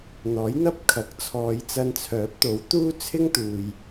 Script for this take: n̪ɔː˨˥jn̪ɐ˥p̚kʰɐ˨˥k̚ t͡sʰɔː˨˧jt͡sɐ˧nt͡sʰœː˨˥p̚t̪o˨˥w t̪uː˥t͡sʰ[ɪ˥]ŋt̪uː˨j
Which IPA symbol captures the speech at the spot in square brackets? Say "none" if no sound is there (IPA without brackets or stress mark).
ɪ˥